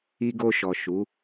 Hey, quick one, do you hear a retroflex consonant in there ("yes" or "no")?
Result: no